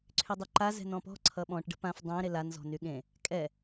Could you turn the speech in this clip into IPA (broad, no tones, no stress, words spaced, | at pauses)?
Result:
ǀʰydˤɵǃa zɛ̤nɔ̃pɔ̤ ǀʰʌɓɔ̃ʈ ɖə̤pãf dˤɛ̃ ɾelan zɔ̤nyɠẽ | kʼɛ